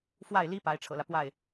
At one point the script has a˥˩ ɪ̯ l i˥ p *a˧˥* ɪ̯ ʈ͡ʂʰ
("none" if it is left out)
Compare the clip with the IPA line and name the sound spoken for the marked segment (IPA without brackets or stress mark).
a˧˥